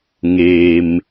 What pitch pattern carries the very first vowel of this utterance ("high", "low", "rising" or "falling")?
low